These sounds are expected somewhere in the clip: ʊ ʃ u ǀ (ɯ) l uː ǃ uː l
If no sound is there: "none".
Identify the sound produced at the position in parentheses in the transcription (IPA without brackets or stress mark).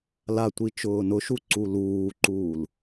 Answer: u